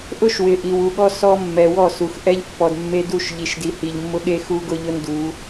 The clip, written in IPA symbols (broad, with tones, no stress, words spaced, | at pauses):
ʔʊ˦ʃwɪ˨ ʔi˨wu˨ɠɔ˦ sɔ˦mːɛ˨wɔ˦˨ su˨x ʔɛ˦ʎpːɔ˨d mːe˦ du˦˨ʃʎi˨ʃdi˨ hi˨ʎmːʊ˦ɠe˦ xu˦ɡʊ˦ʎʊ˦ndu˨˦